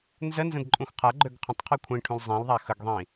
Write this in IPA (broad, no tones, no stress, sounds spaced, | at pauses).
n z ə n z ə̃ d ǃʼ ũ x qʰ a ɡ͡ǃ ø ɡ qʰ ə̃ tˤ qʰ i kʷʰ ĩ ʈʰ ũ l zˤ ĩ l ðˤ a x ə ɡ ðˤ ĩ